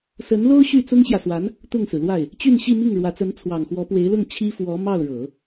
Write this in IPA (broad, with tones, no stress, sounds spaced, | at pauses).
s ə˧˥ n l o˥ ʊ̯ ɕ y˥˩ t͡s ʊ˥ ŋ ɕ j ä˨ s w a˧˥ n | t̪ ʊ˥˩ ŋ s ɹ̩˩ l w a˥˩ ɪ̯ | t͡ɕ y˥˧ n ɕ i˥˧ m i˥˩ ŋ ɻ w ä˧˥ t͡s ə˧˥ n t͡sʰ w ɑ˨˩ ŋ x w ɔ˧˥ p w e˧˥ ɪ̯ l ʊ˥˩ ŋ t͡ɕʰ i˥ f w ɔ˧˥ m ɑ˥˩ ʊ̯ ɻ ɤ˨˩˦